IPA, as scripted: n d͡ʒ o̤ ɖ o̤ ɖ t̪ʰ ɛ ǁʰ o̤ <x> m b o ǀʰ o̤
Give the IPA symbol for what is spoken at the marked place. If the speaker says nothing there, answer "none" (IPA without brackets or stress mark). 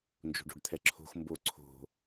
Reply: x